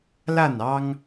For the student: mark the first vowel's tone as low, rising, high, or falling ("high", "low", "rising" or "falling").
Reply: falling